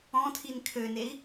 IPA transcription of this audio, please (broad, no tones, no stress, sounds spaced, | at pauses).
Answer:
ɔ̃ tʰ i n kʰ ø n e i̯